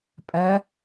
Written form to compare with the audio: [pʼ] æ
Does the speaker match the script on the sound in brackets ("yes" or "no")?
yes